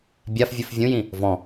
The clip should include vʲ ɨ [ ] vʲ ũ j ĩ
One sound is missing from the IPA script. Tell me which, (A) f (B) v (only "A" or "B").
A